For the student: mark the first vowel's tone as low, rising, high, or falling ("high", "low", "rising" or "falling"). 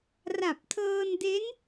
low